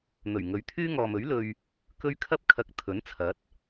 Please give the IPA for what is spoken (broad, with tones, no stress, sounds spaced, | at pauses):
n̪ ɵ˨˩ ɥ ŋ ɵ˨˧ ɥ t̪ʰ yː˥ ŋ ɔː˨ m ɵ˨˥ ɥ l ɵ˧ ɥ | k ɵ˥ ɥ kʰ ɐ˥ p̚ kʰ ɐ˧ k̚ t̪ʰ ɵ˨˥ n t͡sʰ ɐ˨˥ t̚